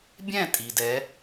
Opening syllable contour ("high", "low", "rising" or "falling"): falling